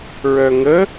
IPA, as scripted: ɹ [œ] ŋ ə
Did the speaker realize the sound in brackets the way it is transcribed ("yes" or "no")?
yes